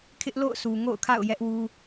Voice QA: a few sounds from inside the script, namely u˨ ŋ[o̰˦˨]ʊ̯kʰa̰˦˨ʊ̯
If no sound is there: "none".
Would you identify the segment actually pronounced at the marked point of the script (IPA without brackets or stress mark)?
o̰˦˨